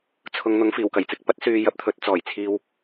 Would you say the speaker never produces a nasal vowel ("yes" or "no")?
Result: yes